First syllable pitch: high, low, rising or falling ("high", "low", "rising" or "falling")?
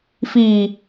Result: low